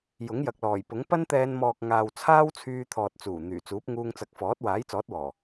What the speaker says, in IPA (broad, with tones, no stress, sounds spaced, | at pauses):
j ʊ˨˥ ŋ j ɐ˨ k̚ l ɔː˨˩ j p ʊ˨˥ ŋ p ɐ˥ n t̪ ɛː˧ n m ɔː˨ k̚ ŋ aː˨ w t͡sʰ aː˥ w t͡sʰ yː˧ t̪ʰ ɔː˨ t̚ t͡s uː˨˩ n̪ yː˨˩ t͡s uː˨˥ p̚ ŋ uː˧ ŋ t͡s ɐ˨˥ k̚ f ɔː˨˥ t̚ w aː˨˥ j t͡s ɔː˨˥ t̚ w ɔː˨˩